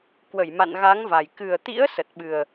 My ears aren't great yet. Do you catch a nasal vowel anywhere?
no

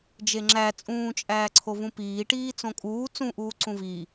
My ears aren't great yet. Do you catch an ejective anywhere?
yes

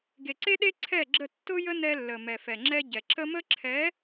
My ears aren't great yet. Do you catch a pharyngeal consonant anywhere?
no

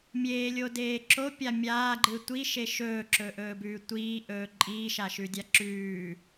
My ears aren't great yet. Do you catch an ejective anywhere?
yes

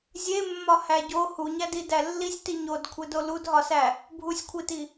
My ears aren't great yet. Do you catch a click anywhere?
no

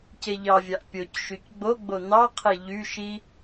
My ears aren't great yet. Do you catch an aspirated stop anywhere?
yes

